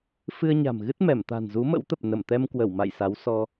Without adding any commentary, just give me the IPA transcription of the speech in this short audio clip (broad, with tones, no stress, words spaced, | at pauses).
fɨ˧ə̯ɲa̤˨˩mɣɨ˦˥t̚mɛ˧˩m t̪a̤˨˩nzu˨˦mə̰˧˥wt̪ə˨˩p̚ nə˧˩mt̪ɛ˧mkwə˧˩w ma̰˧˨jsa˨˦wsɔ˧